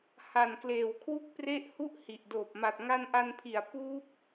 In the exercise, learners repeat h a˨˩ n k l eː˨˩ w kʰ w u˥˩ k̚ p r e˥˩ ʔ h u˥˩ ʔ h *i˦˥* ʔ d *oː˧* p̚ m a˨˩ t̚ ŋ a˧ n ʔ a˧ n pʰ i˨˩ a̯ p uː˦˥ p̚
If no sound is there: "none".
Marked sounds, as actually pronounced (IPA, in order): i˨˩, oː˨˩

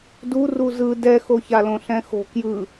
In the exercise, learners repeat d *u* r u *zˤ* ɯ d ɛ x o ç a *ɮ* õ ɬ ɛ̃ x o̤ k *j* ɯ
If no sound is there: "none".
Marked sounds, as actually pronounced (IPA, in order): u, z, l, j

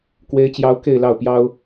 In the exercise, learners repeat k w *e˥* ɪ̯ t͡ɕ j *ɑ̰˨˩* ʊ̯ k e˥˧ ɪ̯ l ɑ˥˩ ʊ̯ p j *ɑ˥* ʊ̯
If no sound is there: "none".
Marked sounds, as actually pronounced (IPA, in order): e˥, ɑ˥, ɑ˥

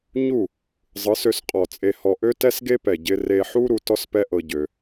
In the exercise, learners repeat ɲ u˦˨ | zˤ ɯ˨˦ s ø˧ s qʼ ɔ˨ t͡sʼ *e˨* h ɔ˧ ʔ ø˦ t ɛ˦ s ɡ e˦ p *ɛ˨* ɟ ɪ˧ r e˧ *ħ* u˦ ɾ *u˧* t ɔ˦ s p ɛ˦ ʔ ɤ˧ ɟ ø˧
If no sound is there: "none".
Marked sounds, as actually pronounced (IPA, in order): e˧, ɛ˨, ħ, u˧

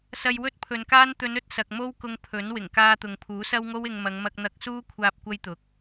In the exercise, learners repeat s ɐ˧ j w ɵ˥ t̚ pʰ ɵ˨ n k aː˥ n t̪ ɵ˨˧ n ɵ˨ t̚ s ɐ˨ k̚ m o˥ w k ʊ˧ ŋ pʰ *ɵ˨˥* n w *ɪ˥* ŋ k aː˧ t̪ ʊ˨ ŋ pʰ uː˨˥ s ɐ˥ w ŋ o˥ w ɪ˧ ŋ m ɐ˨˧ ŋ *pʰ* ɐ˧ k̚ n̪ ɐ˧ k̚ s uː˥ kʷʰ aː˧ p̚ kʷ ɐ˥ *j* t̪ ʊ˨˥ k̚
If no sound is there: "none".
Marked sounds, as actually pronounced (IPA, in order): ɵ˨˥, ɪ˨˩, m, j

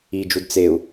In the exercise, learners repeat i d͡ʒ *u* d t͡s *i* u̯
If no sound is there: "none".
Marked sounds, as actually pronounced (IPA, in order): u, e

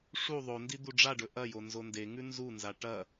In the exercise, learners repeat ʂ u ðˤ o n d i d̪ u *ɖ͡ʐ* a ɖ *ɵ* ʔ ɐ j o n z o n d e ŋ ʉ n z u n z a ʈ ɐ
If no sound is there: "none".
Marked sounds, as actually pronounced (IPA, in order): ɖ͡ʐ, ɵ

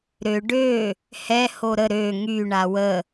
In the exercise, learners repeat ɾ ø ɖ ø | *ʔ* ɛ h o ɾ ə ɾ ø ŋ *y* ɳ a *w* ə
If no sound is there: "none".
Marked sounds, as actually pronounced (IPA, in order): h, y, w

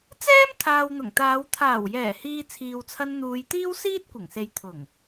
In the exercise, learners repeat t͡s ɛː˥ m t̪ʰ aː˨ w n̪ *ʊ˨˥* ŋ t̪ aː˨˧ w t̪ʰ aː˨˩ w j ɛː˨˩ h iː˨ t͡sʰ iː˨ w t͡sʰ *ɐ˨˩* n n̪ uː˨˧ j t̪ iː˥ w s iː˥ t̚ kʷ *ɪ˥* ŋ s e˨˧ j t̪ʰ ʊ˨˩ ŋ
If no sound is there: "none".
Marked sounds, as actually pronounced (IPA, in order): ʊ˨˩, ɐ˧, ɪ˨˩

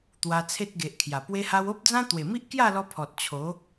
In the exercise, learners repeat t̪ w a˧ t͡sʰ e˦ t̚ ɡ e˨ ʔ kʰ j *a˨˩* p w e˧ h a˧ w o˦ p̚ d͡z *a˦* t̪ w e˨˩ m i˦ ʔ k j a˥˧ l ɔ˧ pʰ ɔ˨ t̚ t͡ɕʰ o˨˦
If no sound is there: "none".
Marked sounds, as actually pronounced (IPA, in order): a˨˩, ã˦

